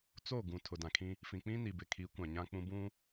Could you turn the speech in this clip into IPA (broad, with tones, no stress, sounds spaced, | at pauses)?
t͡s o˦˨ ɡ ũ˨ tʰ ʊ˨ d ã˨ kʰ ĩ˦ | f ĩ˨ k͡p ĩ˦ n i˨ b ɪ˨ kʰ i˨˦ kʷ ã˨ ɲ ã˦ k͡p ũ˦ b ũ˦